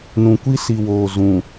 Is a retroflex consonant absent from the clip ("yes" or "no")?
yes